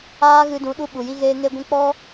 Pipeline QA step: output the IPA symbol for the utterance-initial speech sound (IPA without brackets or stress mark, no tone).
aː